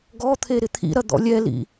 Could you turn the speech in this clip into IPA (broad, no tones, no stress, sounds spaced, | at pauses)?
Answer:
ɡ ɔ t̪ʰ e ɾ ɪ t̪ʰ ḭ ɾ ɐ d̪ ɔ̰ lʲ ɛ l ḭ